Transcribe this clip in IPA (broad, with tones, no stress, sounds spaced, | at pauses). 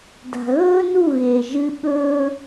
d a̤˨ ɣ ɵː˦ n u˦˨ ɣ e˨ ʒ ɨ˦ ɓ ɵː˦